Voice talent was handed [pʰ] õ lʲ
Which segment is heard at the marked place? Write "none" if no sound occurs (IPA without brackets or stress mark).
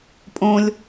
pʼ